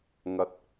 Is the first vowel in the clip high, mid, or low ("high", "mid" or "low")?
low